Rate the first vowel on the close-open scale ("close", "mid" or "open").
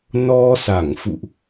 mid